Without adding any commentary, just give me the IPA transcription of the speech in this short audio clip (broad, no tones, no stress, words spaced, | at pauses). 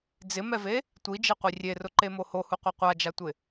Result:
d͡zɪmɛve | tʷid͡ʒeqʷi rʲerʊǃemo hohuqʷɛ qʷad͡ʒatʷɪ